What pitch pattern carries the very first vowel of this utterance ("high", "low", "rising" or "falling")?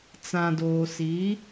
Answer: low